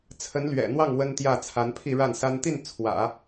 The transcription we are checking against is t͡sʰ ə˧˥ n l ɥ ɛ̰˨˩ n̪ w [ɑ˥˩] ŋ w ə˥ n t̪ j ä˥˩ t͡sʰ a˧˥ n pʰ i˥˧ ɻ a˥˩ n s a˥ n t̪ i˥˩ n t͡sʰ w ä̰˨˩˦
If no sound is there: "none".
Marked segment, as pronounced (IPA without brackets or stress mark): ɑ˥˩